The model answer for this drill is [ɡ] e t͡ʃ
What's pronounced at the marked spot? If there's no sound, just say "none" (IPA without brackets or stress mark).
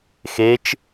x